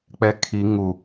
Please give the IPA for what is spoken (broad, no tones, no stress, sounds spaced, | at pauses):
k͡p ɛ kʰ i ŋ u